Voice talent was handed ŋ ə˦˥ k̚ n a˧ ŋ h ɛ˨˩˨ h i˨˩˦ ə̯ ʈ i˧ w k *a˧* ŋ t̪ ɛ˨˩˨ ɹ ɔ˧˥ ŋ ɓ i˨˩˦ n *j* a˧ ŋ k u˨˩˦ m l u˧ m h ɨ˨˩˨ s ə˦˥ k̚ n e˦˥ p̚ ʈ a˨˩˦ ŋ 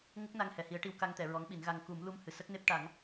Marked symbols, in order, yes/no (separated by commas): yes, no